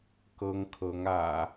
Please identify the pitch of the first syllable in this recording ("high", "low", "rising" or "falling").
high